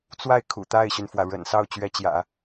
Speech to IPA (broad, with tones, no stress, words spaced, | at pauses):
t͡swa˥˩ɪ̯ kʰṵ˨˩ t̪a˥˩ɪ̯ɕy˩nfwä˩ ɻə̰˨˩n sɑ˥˩ʊ̯t͡ɕɥɛ˧˥t͡ɕjä̰˨˩˦